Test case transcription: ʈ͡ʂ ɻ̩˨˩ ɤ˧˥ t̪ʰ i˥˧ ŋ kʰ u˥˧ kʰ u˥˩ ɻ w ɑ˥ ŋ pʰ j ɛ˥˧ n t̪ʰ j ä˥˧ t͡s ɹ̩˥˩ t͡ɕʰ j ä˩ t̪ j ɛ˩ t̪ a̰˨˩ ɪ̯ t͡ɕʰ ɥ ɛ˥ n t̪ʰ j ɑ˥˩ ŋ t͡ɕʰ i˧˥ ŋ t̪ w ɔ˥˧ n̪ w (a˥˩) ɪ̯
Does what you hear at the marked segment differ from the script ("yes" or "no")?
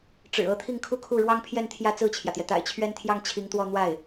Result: no